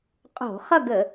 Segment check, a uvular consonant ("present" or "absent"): present